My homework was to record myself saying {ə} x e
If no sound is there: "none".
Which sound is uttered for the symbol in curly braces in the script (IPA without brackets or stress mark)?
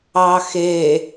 ɑ